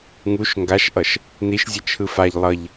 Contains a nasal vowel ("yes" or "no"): no